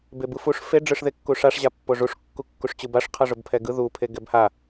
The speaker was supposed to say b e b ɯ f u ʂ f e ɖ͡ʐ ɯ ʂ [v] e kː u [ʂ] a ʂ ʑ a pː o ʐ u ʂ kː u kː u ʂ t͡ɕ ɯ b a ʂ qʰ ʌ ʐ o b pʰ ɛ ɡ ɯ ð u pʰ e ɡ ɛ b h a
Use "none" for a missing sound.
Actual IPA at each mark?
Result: ð, ʂ

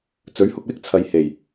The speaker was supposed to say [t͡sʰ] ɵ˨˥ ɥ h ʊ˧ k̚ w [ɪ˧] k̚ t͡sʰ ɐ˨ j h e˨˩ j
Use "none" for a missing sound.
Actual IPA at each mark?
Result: t͡s, ɪ˥

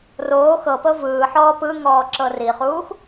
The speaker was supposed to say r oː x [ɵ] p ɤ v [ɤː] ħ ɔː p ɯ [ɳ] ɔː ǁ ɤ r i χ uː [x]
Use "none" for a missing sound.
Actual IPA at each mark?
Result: ɤ, ɯː, ŋ, x

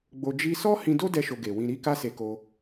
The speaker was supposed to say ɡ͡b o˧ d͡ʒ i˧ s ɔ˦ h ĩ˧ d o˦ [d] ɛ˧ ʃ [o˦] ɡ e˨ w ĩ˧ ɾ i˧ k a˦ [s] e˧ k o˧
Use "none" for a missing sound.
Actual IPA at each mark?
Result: d, o˧, s

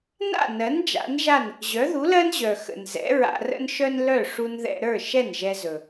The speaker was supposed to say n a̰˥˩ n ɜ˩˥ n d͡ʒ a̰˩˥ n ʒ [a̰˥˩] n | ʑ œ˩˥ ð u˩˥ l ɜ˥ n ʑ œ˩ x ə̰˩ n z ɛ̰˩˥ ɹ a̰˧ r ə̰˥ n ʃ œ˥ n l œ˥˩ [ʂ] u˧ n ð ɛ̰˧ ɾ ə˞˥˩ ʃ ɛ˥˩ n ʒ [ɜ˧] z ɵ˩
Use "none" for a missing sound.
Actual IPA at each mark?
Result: a˥˩, ʂ, ɛ˧

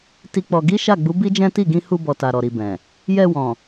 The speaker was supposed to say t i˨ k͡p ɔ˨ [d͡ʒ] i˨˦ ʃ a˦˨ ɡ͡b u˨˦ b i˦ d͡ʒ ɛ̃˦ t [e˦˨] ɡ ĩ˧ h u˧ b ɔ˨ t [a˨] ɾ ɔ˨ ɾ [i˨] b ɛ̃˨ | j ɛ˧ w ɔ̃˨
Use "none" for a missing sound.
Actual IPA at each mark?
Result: ɡ, i˦˨, a˨, i˨

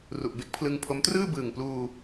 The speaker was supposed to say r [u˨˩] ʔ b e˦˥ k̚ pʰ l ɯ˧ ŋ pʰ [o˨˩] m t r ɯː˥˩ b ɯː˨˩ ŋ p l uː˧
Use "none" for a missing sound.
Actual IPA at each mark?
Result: u˨˩, o˦˥

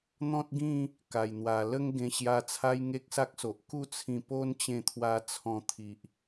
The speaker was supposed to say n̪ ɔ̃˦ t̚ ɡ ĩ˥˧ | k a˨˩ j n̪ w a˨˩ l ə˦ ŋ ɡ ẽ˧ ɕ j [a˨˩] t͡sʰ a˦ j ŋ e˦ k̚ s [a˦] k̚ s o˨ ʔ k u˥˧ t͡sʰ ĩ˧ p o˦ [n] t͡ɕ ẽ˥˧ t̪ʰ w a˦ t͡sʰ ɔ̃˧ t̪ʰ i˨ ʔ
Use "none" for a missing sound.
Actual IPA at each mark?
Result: a˧, a˦, n

